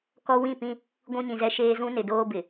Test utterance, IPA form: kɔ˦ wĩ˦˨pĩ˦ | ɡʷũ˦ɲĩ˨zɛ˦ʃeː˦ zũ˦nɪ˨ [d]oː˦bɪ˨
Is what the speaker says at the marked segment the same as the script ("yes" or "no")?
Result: yes